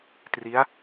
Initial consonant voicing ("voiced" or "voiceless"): voiceless